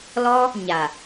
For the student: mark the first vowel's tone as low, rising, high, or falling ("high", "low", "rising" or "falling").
high